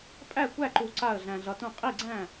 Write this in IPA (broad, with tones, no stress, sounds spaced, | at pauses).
pʼ æ˥˩ kʷ æ˥˩ ǃ u˨ ǀ a˥˩ ə̯ ɮ æ̃˨ ɮ ʌ˨ t ũ˥˩ qʼ i˥˩ ɡ͡ǀ æ̃˥˩